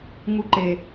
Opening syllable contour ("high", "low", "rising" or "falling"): high